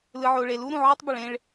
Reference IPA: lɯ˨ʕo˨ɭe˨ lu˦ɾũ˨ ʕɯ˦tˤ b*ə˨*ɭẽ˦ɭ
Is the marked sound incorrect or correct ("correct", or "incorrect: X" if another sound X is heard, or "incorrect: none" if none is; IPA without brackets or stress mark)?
correct